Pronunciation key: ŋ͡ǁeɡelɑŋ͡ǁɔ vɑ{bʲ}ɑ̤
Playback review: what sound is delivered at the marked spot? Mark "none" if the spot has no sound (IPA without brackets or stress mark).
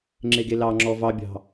bʲ